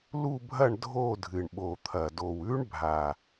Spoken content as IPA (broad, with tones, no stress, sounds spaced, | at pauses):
l u˥˨ bʱ ɐ˥˨ ɳ dʱ o˥˨ dʱ ɨ˨˩ ɳ ɓ o˨˩ t̪ʰ ɐ˨˩ d o˨˩ w ʉ˦˥ ɳ bʱ a˨˩